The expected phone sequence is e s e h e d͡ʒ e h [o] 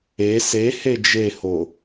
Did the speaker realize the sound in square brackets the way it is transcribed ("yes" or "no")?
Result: yes